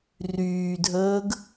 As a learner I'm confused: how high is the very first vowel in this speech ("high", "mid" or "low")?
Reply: high